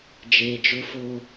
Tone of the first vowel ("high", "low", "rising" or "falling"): low